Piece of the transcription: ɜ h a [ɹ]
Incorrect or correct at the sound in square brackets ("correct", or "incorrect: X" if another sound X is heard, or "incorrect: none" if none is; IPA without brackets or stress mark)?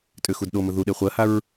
correct